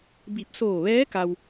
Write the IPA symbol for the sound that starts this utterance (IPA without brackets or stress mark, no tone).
b